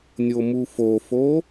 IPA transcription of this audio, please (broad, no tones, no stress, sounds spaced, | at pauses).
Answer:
nʲ o m u f o f o